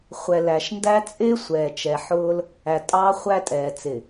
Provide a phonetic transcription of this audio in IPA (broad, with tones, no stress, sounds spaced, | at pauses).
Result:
χʷ ɛ˨ l æ˨ ʃ n d æ˦ t͡sʼ ɪː˦ sʷ ɛː˨ t͡ʃ ɛ˨ ħ ʊː˦ l | æ˨ tʼ ɑː˦ χʷ æ˦ tʼ ɛː˨ t͡s ɪ˨